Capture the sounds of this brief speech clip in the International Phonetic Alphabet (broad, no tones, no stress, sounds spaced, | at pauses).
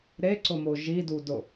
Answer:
ɾ e ǀ ʊ m o ʒ i d u d ʊ